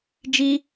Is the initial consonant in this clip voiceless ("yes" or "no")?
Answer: no